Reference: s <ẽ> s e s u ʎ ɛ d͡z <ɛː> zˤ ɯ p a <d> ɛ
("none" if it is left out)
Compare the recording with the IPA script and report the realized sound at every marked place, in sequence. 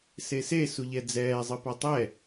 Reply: e, ɛː, tˤ

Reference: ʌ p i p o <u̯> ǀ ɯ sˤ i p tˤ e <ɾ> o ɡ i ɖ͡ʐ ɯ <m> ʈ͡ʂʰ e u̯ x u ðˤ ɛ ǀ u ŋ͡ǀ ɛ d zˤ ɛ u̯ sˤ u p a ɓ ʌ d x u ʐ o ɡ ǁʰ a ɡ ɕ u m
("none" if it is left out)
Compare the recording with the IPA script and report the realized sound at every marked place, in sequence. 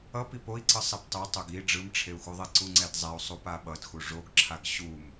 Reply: i̯, tˤ, m

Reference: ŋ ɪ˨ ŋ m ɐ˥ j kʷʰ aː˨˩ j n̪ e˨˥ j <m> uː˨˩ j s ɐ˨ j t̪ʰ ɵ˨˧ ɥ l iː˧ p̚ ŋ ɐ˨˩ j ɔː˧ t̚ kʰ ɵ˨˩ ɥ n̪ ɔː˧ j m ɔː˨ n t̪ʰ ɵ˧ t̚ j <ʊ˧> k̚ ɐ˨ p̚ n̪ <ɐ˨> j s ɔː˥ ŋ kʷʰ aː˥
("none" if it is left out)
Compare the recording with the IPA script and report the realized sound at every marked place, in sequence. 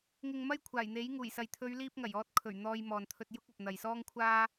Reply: ŋ, ʊ˥, ɐ˨

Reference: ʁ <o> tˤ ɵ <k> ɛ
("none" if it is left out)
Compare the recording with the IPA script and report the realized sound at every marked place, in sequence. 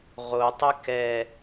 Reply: o, k

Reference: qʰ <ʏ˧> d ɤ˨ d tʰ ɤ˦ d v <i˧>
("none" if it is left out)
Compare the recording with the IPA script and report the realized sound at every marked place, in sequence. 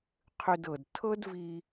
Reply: ʏ˧, i˧

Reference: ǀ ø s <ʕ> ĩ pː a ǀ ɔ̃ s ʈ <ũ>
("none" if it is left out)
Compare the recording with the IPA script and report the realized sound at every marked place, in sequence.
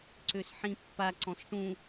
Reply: ħ, ũ

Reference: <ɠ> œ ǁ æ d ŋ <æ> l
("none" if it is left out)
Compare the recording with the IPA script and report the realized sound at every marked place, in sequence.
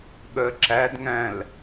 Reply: ɠ, æ̃

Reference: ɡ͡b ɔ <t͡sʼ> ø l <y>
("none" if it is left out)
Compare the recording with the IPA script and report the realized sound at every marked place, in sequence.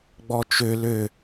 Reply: t͡ʃ, ø

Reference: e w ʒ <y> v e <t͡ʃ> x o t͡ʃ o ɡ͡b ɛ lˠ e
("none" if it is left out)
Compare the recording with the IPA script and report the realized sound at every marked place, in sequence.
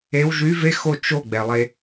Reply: y, none

